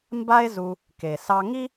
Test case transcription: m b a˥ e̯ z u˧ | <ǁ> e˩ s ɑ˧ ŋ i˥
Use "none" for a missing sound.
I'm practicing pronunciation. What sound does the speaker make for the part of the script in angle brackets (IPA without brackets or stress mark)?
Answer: k